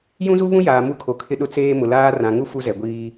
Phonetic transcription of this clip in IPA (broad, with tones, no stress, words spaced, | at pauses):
jũ˦zu˦βũ˦jaː˨ mu˦kʰo˨kʰɪ˦ɗʊ˦ t͡seː˦mʊ˨laː˦ rã˨ŋu˦ fu˦zɛ˨ɡʷiː˦